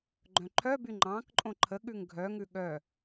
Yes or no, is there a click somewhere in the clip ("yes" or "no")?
yes